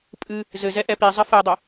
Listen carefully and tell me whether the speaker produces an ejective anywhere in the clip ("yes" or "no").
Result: yes